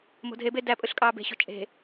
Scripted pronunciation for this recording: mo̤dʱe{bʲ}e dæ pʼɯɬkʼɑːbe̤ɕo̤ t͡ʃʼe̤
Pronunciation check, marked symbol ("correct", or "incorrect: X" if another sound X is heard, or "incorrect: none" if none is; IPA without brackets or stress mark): incorrect: b